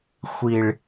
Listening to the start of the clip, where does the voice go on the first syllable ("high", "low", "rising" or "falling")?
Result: low